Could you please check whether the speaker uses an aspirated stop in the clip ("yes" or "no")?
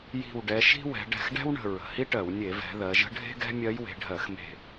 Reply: no